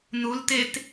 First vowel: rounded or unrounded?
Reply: rounded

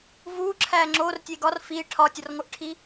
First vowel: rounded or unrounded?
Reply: rounded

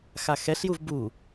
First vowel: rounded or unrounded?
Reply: unrounded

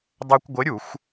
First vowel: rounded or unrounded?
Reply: unrounded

